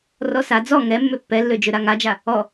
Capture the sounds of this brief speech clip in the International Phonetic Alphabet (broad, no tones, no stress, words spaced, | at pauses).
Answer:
rɔsa d͡zɔ ŋɛmːø pːɛlːød͡ʒøɾa ŋad͡ʒa | ɔ